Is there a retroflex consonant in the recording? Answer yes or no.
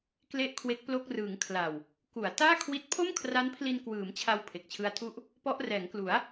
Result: no